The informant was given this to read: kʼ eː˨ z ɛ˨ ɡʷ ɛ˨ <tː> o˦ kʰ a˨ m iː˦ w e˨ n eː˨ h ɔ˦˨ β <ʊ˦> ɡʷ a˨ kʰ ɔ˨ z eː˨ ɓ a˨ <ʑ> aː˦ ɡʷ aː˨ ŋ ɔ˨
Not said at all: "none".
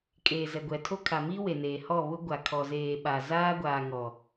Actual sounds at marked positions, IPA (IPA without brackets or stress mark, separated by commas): tʰ, ʊ˦, z